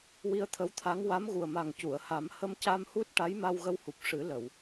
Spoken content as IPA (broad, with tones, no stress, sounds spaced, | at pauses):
w i˧ ə̯ t̪ʰ ə˧˥ w t̪ʰ a˧˥ ŋ w a˧˥ m ɣ u˨˩ ə̯ m a˨˩ ŋ c u˨˩˨ ə̯ h a˨˩˦ m h ə˧ m c a˧ m h u˦˥ t̚ ʈ a˧˥ j m a˧ w ɣ ə˧ w h u˨˩ p̚ ʂ ɨ˨˩˦ l ə˨˩˨ w